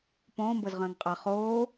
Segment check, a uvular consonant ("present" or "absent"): present